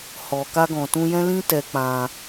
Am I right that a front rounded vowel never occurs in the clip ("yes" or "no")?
yes